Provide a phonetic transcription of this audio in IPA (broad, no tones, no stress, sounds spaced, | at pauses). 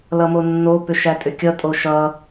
l ʌ m o nː o p ʏ ʃ æ tʼ ʏ kʲ ʌ tʼ o ʃ ʌ